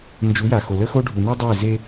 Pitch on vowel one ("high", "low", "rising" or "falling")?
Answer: rising